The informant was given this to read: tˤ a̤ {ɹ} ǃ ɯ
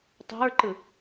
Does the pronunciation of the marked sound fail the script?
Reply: no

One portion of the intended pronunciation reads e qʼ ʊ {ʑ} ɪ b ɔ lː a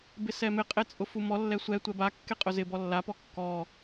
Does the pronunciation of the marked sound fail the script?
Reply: yes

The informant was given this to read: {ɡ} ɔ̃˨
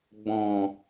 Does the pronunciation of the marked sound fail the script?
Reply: yes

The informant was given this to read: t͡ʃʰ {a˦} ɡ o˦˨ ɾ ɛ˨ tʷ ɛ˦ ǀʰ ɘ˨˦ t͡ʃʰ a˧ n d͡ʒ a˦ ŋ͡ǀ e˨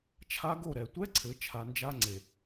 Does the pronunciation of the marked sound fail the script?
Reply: no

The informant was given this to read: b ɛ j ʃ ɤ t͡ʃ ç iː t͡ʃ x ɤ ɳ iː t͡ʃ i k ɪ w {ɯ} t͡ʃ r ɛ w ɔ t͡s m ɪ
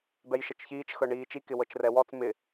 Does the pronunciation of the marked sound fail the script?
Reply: yes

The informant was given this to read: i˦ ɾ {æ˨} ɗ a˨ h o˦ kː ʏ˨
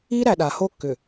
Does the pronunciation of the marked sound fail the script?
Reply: no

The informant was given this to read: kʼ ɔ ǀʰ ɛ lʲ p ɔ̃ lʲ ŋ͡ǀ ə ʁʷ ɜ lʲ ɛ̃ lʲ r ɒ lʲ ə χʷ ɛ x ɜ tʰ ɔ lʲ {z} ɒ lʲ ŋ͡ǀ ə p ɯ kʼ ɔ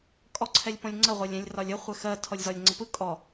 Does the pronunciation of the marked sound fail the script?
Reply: no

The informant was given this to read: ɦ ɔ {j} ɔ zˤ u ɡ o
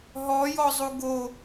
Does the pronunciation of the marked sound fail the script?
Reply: no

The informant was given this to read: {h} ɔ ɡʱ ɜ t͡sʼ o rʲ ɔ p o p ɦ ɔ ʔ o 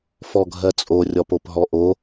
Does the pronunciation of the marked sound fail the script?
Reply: yes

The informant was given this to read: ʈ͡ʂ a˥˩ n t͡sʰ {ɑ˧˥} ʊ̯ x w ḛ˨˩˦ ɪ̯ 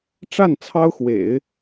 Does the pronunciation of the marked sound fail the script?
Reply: yes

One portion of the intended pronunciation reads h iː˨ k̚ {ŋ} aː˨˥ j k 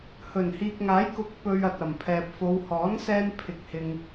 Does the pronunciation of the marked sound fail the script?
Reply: no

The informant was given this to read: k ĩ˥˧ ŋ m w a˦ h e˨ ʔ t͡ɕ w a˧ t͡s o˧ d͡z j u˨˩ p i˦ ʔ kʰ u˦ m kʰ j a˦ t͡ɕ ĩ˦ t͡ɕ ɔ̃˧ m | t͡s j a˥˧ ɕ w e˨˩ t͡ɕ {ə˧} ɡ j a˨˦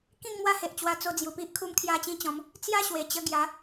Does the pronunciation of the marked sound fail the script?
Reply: no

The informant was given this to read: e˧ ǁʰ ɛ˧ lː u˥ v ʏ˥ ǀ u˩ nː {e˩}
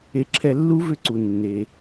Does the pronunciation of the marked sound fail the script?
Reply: no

